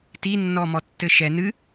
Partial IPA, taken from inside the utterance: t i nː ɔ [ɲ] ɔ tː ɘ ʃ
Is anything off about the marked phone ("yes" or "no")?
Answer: yes